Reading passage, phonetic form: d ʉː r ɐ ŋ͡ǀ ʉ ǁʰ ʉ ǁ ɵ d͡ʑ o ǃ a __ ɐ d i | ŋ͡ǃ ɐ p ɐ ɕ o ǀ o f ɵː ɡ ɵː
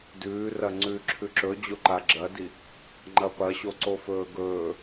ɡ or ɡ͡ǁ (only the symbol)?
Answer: ɡ͡ǁ